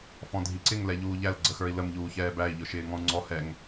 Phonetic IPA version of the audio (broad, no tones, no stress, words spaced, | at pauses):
fɔ̃dʱiǀɪŋ lɛʎuːʎæl ɡ͡ǀəxə˞i̯ləm ʎuːçɛːbæi̯ ʎʊʃɪːŋɔ̃u̯ŋ͡ǀɔ hɛŋ